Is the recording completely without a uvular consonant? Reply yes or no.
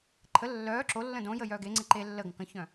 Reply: yes